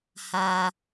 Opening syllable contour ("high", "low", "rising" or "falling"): low